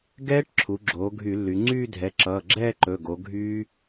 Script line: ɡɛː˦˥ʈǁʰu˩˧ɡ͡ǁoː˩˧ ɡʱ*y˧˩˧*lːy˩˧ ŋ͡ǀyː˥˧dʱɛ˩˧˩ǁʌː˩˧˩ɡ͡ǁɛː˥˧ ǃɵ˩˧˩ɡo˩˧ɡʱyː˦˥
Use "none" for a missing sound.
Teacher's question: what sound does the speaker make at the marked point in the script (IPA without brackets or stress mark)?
y˧˩˧